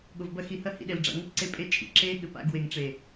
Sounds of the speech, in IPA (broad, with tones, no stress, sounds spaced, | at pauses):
ɠ o˨ v b ɐ˧ x i˨ h ɐ˧ h ḭ˨ ɗ e˨ l ɖ͡ʐ a̰˨ ŋ o˧ p ǀ e˧ pʼ e˧ t͡ʃʼ ḭ˨ ǁ e˧ ɠ ɘ˨ p a̰˧ ɡ w e˨ ŋ ʈ͡ʂ e˨